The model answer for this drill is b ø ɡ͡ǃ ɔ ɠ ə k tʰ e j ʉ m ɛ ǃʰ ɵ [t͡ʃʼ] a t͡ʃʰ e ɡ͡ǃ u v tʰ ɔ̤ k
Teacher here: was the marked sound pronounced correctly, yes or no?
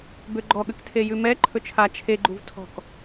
no